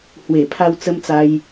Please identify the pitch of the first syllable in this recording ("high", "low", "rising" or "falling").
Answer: low